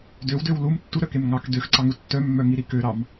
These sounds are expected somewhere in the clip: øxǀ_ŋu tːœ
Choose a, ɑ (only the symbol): ɑ